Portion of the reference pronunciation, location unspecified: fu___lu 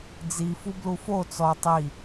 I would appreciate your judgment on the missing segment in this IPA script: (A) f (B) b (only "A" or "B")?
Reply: B